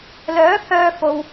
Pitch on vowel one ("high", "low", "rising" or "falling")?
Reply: rising